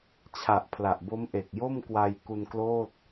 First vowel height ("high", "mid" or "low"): low